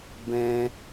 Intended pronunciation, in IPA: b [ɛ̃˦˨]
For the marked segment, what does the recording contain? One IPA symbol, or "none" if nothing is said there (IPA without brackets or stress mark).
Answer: ɛ̃˦